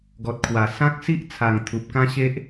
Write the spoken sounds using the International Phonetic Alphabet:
ɡɔ˨t̚kʰwa˨˩ sã˦k̚si˦ʔ t͡sʰa˨˩ŋ t̪ʰu˨p̚kã˦ɕe˦ʔ

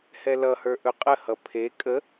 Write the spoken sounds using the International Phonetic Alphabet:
hɛlʌhə˞ ʔɵqʼəhʌ pʰe kʼə

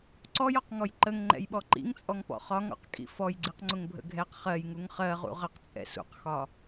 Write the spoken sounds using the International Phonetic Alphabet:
ǀɔjɔqŋɔj ǃəŋŋ͡ǃɛ̰jɓɔ ǃḭŋt͡sʼɔŋpɔ̰ χɒŋɔ̰qkʼḭ fɔjɡ͡ǀiqŋ͡ǀʊŋbʱə̰ ɡʱɛq χɜjŋuŋ χɜʁṵ ʁəqt͡sʼɛ̰ sṵqxɒ

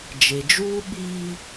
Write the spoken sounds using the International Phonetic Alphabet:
d͡ʒe˨d͡ʒuː˦ ɓiː˦

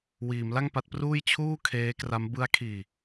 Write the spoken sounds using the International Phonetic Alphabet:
wiː˩˦m la˥˩ŋpa˦˥t̚pruː˥˩j t͡ɕʰuː˥˩kʰeː˦˥kra˦˥m bɯ˦˥a̯kʰiː˧

